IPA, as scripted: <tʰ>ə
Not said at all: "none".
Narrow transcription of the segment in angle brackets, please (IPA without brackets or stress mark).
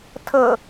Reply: tʰ